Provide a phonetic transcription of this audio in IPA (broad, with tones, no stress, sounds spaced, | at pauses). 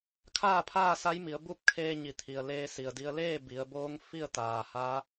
kʰ aː˥˨ pʰ aː˥˨ s a˧˥ j m i˩˧ ə̯ b u˥˨ p̚ kʰ eː˧ ɲ i˩˧ t̪ʰ i˩ ə̯ l eː˧ s i˩ ə̯ d i˧ ə̯ l eː˥˨ b i˩˧ ə̯ b oː˧˥ ŋ f i˥˨ ə̯ t̪ aː˩ h a˧˥